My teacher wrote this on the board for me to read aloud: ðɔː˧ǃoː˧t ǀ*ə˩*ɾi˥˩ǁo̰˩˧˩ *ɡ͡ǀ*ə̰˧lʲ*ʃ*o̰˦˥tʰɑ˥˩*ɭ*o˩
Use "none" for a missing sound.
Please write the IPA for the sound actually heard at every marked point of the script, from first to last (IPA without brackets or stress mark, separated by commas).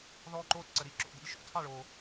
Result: ə˩, d̪, ʃ, ɭ